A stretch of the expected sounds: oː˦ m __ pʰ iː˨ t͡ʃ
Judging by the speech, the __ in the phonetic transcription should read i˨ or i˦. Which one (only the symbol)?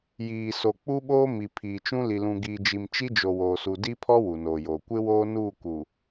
i˨